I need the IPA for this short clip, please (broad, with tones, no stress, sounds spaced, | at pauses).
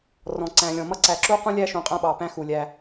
r ɔ̃˨ ǀ æ̃˨ lʲ ɔ̃˨ m ʌ˦ ǀ æ˨ ǁ u˦ q ũ˦ lʲ æ˦ ʃ ũ˨ qʼ æ̃˦ ɓ ɑ˨ p æ̃˦ x u˨ lʲ æ˦